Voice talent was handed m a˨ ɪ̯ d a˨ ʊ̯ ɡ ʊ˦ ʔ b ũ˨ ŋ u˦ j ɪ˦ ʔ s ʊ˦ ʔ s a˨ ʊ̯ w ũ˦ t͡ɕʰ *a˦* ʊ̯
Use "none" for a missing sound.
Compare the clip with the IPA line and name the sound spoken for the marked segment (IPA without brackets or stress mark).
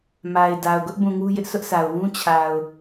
a˨